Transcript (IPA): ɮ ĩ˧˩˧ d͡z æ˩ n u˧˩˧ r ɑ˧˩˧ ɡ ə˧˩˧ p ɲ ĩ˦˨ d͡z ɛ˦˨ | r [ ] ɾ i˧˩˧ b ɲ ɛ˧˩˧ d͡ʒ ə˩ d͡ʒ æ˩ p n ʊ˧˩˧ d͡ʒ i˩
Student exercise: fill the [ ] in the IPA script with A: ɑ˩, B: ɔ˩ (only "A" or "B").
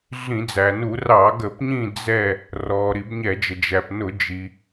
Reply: B